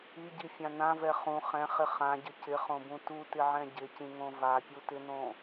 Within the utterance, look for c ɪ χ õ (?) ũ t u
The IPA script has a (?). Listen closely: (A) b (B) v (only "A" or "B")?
A